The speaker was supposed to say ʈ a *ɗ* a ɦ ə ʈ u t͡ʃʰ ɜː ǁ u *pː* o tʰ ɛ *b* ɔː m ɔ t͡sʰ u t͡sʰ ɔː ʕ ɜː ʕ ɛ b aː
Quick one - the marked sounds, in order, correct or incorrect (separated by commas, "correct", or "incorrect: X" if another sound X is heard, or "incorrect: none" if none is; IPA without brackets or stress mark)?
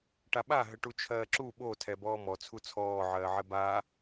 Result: incorrect: ɓ, incorrect: ɓ, correct